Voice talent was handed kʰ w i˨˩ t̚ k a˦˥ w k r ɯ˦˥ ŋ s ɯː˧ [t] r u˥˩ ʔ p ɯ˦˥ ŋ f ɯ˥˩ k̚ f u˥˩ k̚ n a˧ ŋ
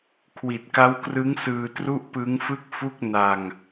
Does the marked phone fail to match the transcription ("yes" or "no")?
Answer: no